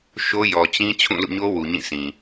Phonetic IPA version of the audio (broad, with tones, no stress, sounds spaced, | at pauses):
ʃ o˦ j ɔ˨ t͡ɕ ĩ˦ t͡ɕʰ ũ˦˨ l ṵ˦˨ ɲ o˦ w u˨ ɲ ĩ˦˨ s ĩ˨